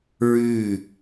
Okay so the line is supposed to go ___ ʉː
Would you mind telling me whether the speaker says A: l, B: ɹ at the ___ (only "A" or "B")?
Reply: B